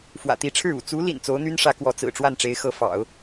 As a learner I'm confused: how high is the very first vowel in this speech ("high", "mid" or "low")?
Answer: low